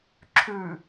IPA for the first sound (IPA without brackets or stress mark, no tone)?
ǁʰ